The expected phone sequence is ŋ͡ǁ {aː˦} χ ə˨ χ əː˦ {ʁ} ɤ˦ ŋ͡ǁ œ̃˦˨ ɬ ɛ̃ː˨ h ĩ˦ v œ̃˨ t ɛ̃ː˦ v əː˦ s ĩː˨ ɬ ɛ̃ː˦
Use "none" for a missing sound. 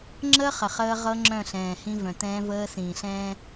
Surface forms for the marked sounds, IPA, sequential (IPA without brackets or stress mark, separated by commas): əː˦, ʁ